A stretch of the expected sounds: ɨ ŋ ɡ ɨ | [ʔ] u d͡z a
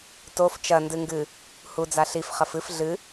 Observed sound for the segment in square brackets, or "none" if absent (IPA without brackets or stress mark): h